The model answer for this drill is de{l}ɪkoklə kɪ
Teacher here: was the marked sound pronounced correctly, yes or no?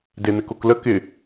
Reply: no